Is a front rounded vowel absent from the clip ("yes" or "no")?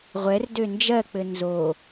no